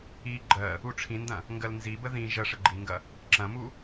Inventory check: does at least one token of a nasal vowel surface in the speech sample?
yes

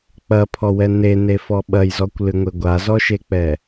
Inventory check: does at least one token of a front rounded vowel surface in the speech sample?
no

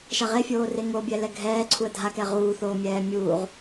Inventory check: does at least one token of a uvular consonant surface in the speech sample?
yes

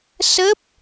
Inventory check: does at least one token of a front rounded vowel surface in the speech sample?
no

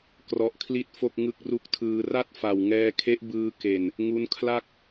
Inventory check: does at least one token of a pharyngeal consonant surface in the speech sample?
no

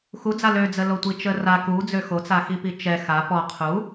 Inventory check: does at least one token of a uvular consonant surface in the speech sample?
yes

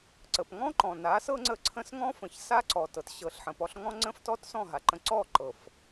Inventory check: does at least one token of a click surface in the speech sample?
yes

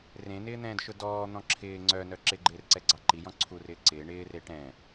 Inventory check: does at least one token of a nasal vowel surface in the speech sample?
yes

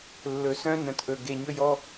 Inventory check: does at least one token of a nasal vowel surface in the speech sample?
yes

